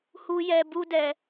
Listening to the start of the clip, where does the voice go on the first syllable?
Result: high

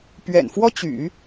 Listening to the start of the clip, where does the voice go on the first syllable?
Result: low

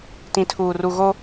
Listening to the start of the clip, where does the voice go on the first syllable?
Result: low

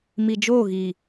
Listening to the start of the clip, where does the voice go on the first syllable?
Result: low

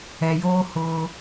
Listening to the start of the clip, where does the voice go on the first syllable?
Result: low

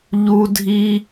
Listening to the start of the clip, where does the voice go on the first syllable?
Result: high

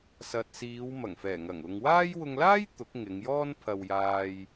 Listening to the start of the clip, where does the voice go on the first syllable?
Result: low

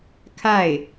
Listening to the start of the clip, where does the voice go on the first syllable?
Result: falling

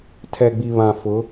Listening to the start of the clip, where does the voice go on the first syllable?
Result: low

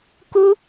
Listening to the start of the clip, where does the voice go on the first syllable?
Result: high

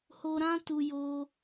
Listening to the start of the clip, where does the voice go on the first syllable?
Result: high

